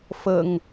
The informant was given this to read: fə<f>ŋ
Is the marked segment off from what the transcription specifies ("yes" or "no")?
yes